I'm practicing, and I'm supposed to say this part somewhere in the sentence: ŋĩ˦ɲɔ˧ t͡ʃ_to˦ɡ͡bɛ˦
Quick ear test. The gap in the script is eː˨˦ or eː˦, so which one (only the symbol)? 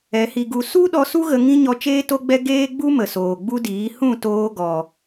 eː˦